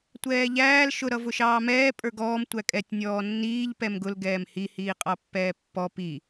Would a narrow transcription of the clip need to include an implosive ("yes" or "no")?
no